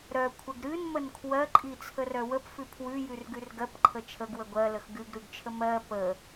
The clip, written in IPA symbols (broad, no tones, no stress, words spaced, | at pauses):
ɾœkʷʰəɡ ɾɨnmən kʰwɜǃʼit͡sʰərœ wəpfʉ pʰwʉjʉrɡʉr ɡɜpǃʰə t͡ʃʰəɡwə ɡʷɜləx ɡʉɡɾʉɡt͡ʃʰə mɜ pə